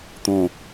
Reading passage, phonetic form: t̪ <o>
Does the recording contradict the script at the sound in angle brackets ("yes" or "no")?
yes